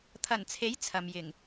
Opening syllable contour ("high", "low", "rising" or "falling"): low